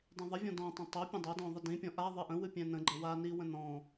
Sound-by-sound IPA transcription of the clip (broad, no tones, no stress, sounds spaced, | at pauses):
dˤ ĩ ðˤ ə vʲ ɔ̃ d ɔ̃ tˤ ɛ̃ tˤ o pʲ ə̃ dˤ o d ɔ̃ ðˤ ɨ d ĩ pʲ ɔ̃ ʔ a ðˤ ɨ ʔ ə̃ w ɨ pʲ ɛ̃ n ə̃ ɡ͡ǃ ə w a n i w ə̃ n ɔ̃